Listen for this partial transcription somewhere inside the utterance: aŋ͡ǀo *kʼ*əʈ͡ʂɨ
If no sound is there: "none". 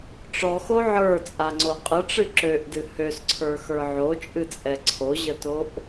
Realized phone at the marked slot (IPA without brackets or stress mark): qʼ